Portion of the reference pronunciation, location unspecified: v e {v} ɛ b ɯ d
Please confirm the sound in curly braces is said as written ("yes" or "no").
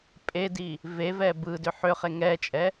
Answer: yes